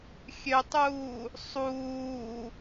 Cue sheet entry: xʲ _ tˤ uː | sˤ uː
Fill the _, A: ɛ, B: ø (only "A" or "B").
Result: B